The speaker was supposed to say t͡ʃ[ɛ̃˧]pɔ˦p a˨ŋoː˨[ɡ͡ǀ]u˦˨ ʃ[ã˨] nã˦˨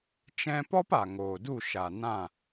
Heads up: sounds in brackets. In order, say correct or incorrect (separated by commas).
correct, incorrect, incorrect